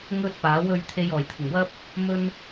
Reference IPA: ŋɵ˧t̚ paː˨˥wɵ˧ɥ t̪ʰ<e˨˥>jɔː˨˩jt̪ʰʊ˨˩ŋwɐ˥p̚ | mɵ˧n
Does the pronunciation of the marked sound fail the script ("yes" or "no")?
yes